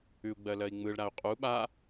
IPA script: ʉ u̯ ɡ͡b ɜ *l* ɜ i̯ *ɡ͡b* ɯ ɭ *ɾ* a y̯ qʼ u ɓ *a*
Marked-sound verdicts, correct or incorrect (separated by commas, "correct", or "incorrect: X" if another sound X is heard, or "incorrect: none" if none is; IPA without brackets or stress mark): correct, incorrect: ŋ͡m, correct, correct